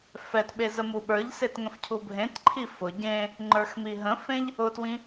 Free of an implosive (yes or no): no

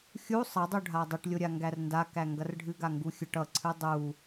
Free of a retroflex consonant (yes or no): no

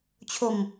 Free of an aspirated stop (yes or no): no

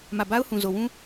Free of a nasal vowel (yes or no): no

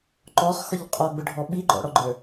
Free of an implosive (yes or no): no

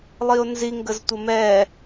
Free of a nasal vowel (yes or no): yes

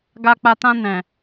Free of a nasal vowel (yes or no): no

